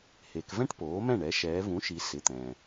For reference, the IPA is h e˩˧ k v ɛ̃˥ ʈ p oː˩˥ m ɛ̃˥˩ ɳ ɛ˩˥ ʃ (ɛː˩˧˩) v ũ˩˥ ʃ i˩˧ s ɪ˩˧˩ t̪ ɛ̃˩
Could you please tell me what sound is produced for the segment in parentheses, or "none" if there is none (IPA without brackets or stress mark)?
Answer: ɛː˩˧